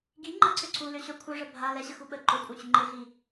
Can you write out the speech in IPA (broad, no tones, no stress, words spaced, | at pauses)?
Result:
ɡi ŋ͡ǃəǀʏ ǀulʏ ɕœkʷʰœʐə bʱa lɛɕəxuɓə ǃʏkʷʼœt͡ɕʏ ŋ͡ǃɪɮi